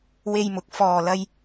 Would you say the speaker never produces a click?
yes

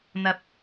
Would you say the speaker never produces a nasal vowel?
yes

